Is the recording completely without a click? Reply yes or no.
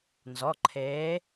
no